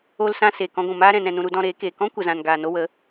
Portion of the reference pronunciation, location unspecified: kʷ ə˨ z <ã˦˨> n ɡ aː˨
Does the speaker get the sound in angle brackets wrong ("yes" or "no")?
yes